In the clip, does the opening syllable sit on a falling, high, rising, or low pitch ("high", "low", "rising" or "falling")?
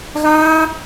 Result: high